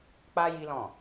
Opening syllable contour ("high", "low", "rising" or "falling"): high